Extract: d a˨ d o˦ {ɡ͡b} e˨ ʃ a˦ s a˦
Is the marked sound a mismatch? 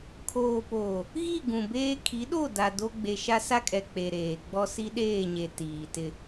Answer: no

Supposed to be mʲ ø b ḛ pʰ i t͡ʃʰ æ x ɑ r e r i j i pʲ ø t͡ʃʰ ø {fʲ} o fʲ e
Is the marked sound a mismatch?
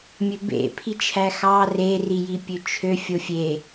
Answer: no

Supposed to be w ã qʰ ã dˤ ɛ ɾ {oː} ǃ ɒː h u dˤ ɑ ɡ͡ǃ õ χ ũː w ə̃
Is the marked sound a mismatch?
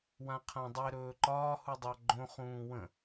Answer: yes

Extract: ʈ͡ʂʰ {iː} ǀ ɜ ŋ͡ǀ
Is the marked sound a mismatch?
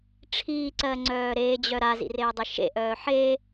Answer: no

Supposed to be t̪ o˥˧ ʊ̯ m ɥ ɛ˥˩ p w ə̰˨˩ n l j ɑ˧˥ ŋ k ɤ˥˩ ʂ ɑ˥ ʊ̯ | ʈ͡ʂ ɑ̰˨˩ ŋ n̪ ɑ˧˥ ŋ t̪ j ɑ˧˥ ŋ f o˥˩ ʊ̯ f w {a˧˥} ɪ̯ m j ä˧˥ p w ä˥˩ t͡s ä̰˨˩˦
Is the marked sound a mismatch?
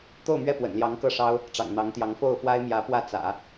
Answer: yes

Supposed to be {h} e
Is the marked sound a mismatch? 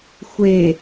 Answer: yes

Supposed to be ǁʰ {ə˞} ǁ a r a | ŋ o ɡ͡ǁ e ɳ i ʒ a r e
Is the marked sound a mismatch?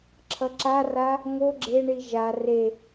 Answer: yes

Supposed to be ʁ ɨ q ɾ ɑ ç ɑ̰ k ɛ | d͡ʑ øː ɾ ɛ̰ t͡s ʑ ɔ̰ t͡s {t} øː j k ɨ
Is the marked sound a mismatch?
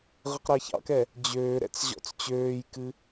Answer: yes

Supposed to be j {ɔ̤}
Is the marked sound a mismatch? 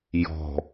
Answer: no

